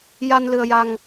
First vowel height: low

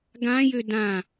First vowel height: low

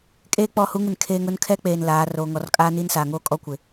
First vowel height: mid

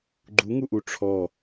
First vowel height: high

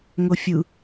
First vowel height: mid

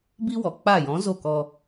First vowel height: high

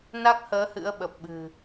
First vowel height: low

